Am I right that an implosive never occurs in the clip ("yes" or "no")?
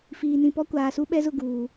no